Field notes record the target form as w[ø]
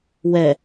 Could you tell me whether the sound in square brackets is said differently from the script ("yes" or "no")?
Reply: yes